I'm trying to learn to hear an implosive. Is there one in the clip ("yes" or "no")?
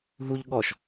yes